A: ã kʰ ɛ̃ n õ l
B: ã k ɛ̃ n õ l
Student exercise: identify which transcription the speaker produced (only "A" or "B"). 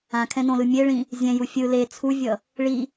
A